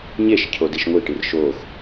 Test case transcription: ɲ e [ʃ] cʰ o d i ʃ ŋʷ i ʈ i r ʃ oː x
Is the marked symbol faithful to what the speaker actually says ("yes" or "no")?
yes